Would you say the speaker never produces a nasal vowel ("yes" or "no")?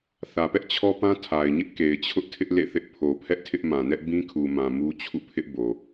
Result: no